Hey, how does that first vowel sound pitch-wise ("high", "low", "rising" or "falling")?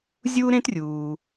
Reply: high